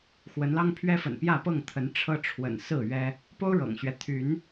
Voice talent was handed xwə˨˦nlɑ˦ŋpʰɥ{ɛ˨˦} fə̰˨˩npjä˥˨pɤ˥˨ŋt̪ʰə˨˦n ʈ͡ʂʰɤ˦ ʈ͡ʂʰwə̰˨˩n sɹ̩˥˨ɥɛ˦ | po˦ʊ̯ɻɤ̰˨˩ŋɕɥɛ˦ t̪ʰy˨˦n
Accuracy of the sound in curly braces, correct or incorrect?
incorrect